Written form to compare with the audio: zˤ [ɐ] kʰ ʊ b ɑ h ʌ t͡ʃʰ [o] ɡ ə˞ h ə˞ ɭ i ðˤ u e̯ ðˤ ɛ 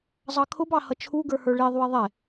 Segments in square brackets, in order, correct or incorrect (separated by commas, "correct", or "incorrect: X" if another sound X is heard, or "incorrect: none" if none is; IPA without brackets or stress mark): incorrect: ɑ, incorrect: u